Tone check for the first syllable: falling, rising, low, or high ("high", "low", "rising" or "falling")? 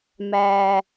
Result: low